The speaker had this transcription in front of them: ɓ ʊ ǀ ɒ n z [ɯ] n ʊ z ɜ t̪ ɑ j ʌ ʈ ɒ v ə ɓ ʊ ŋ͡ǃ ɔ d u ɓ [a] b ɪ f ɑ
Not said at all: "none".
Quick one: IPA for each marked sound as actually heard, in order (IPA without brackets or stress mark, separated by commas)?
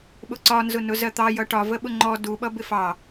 ʊ, ʌ